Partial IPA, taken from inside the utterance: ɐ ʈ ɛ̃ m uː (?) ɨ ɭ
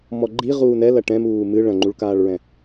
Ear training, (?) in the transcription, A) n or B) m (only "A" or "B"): B